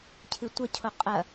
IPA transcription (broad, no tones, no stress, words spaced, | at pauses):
cʰɨtʷɐcʰo qʼɐ